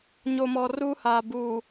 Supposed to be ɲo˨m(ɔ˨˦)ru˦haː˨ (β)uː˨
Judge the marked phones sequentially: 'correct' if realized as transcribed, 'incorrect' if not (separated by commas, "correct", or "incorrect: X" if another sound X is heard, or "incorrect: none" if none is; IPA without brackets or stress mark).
incorrect: ɔ˨, incorrect: b